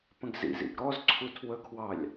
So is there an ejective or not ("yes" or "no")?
no